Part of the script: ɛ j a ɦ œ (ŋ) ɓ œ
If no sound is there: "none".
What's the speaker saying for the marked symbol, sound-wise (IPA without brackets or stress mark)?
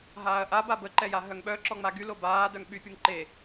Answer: ŋ